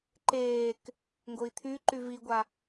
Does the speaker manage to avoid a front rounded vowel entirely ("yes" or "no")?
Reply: no